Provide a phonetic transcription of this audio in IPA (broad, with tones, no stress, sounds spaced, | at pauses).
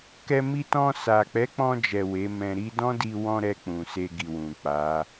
k ɛ˧ m i˧ t ɔ̃˧ s a˨ k͡p ɛ˨˦ k͡p ɔ̃˧ d͡ʒ ɛ˨ w e˨˦ m ɛ̃˧ ɾ i˦ d ɔ̃˦ d i˧ w ɔ̃˧ ɾ ɛ˧ k͡p ũ˨ s e˧ ɡ i˨ w ũ˨ k͡p a˨˦